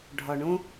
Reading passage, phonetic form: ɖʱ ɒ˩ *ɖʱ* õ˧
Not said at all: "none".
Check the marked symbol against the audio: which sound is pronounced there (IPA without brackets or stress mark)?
ɳ